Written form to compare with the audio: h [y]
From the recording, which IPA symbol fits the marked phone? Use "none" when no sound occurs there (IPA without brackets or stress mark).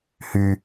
y